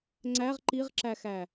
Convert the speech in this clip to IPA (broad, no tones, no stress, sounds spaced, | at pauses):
ŋ͡ǀ æ ʁ ǃ i ʁ ǁ æ x æ